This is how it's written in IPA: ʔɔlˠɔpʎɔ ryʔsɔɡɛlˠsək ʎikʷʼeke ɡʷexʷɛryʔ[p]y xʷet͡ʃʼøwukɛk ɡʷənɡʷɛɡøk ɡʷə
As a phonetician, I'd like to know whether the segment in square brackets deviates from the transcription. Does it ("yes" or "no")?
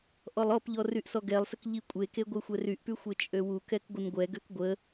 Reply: no